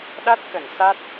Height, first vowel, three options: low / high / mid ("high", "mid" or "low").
low